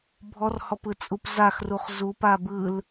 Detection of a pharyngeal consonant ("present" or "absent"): absent